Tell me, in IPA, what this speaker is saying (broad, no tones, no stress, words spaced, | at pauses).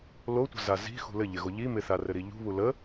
lotʷə̤za zi̤xṳ lɘʎɪɣo ʎi mɪθarɘɾi ʎṳβu lə